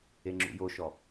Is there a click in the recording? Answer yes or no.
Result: yes